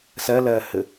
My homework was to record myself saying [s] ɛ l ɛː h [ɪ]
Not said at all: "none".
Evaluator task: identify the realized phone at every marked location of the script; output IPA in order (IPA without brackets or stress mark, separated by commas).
s, ɪ